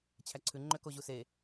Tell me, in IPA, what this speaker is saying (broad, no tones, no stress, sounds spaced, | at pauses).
t͡ɕʰ æ ǀʰ ʉ ŋ͡ǃ ø k o ʑ u s e